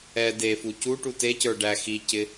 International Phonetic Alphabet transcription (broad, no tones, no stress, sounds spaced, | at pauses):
ɛ d e f u c u ʈ u t e c ə˞ ɖ æ x i c ɪ